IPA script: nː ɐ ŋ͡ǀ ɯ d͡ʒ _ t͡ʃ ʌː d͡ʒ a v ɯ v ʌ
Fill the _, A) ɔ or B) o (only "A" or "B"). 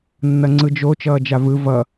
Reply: B